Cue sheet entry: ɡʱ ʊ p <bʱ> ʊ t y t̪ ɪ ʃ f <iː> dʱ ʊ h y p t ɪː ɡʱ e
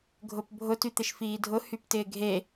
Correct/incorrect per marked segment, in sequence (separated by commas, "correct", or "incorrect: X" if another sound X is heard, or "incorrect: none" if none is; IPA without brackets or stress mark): correct, correct